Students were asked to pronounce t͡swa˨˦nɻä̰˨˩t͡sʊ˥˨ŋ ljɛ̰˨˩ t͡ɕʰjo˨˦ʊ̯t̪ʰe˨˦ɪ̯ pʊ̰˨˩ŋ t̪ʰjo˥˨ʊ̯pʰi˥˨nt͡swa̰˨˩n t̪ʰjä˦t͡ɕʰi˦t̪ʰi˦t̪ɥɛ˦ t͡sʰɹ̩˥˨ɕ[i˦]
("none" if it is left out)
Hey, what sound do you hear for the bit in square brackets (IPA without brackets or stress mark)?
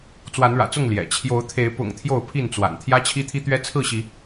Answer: i˨˦